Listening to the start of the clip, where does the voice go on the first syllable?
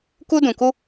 high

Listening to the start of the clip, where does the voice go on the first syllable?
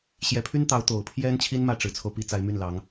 rising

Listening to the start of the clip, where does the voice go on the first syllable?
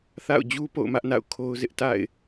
falling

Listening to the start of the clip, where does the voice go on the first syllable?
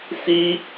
high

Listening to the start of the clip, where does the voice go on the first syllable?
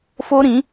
high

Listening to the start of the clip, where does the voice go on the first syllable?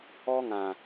high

